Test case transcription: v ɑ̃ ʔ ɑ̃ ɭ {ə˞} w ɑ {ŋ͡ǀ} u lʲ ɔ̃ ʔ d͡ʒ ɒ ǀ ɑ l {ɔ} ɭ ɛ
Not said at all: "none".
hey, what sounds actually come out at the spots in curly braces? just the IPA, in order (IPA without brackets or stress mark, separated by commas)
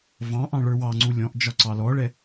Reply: ə˞, ŋ͡ǀ, ɔ